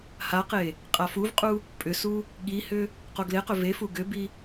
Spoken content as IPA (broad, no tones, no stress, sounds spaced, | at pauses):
h a q e | qʼ a f u v qʼ u | pʼ ʏ s u | ɠ i h ʏ | q o ɡ l e q ʏ v e f u ɡ ʏ b i